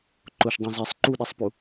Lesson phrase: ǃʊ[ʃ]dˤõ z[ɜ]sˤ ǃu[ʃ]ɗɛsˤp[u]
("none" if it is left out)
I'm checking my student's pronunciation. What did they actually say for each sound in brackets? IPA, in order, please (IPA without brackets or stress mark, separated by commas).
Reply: ʃ, ɛ, none, u